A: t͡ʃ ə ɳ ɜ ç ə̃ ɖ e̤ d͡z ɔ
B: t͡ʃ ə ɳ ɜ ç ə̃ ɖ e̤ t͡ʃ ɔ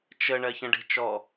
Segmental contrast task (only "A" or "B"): B